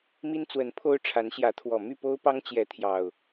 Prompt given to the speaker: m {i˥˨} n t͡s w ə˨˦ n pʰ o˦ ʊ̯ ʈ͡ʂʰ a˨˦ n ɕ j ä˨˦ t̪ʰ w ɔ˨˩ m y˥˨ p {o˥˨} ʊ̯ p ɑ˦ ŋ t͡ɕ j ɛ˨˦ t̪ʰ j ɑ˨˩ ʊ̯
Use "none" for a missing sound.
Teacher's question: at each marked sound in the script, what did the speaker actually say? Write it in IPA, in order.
i˦, o˦

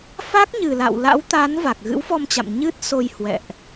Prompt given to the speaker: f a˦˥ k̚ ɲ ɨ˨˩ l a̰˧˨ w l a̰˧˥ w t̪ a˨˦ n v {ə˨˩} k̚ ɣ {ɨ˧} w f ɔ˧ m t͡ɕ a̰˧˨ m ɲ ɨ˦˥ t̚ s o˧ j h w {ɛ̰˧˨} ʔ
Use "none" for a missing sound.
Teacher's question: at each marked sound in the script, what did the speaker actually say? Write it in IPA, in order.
a˨˩, ɨ̰˧˥, ɛ̰˧˨

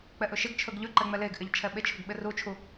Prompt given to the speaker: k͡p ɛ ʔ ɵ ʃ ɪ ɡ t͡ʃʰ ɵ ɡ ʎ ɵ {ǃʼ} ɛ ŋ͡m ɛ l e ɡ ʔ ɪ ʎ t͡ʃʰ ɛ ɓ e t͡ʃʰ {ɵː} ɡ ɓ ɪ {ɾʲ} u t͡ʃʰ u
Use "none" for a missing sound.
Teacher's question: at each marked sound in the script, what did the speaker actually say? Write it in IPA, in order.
ǃ, ɵ, r

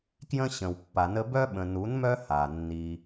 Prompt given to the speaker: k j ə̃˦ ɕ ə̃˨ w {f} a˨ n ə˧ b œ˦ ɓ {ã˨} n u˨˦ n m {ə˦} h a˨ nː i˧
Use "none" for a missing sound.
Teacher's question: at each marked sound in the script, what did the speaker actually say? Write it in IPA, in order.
pː, ə̃˨, œ˦

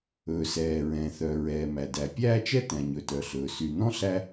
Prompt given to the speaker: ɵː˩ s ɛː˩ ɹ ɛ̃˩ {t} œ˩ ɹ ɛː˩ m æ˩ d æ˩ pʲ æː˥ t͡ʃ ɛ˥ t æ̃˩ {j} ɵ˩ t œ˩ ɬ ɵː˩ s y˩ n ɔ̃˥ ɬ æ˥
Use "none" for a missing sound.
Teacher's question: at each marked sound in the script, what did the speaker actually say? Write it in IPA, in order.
θ, ɲ

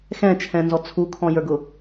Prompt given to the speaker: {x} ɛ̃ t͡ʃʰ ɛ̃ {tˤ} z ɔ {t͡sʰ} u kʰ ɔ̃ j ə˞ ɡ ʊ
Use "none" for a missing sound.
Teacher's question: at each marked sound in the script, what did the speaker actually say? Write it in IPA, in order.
x, n, t͡sʰ

